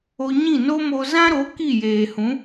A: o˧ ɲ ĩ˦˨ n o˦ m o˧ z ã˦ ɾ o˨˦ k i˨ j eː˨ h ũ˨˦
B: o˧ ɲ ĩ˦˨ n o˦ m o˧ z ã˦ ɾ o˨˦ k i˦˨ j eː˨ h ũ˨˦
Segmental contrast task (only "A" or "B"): B